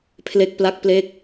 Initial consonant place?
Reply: labial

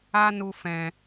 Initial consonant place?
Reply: alveolar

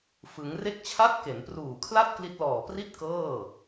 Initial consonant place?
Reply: labial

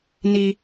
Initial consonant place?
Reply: alveolar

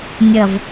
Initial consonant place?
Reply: alveolar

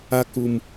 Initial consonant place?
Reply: velar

